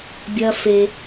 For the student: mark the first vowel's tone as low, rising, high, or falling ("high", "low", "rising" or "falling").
high